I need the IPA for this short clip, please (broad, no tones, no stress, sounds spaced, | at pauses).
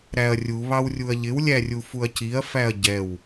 ɾ æ ɐ̯ rʲ u β ɑ w rʲ u ɐ̯ ʎ ɪ w lʲ æ rʲ u f u ɐ̯ c i ɐ̯ f æ ɐ̯ ɟ ɛ w